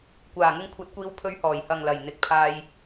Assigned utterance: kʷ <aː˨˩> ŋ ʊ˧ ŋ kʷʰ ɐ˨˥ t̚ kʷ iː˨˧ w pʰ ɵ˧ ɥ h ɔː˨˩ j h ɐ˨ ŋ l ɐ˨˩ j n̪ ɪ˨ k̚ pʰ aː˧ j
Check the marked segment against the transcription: correct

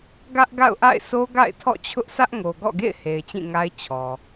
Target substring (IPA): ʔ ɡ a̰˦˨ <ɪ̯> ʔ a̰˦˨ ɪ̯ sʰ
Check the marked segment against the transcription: incorrect: ʊ̯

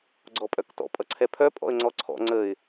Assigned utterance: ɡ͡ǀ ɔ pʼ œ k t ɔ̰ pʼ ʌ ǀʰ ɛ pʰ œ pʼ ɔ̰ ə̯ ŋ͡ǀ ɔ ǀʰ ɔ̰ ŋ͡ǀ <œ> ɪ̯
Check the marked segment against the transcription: incorrect: ə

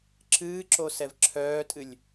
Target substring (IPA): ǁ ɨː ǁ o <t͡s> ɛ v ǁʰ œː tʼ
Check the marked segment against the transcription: incorrect: s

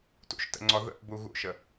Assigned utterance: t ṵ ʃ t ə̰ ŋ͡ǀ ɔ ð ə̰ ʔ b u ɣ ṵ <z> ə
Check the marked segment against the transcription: incorrect: ʃ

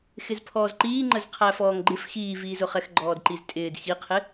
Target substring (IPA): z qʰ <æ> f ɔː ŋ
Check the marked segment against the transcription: correct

